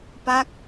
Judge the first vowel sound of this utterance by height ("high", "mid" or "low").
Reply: low